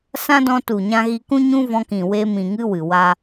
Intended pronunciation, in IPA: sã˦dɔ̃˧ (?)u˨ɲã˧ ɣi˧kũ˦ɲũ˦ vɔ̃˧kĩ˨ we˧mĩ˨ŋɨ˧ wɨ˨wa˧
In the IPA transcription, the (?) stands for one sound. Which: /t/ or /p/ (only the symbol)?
t